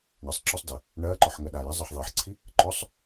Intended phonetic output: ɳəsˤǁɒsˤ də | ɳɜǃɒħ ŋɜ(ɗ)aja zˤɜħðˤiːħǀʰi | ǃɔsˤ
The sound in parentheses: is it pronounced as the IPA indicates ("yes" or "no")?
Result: yes